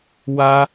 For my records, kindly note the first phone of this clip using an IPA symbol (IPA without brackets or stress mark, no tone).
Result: w